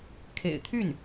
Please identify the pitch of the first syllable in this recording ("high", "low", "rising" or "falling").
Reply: low